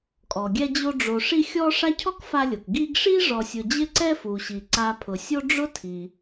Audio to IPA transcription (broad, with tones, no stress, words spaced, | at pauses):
kʼɔ˩ɡʲɛ˦d͡ʑo˦ ɖ͡ʐo˨ʂi˦ xʲɔ˥ ʂa˦cʰɔ˥k fa˦lʲo˩k ɡi˦ɡʂi˥ ʐɔ˨sʲʊ˨d͡ʑɪ˦ ǀɛ˦fu˩ɕi˩ǀa˨ pʰʊ˩sʲo˦ ɖ͡ʐʊ˥tʰi˩